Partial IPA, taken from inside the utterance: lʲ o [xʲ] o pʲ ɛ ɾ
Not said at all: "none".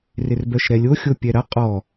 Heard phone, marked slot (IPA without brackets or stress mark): xʲ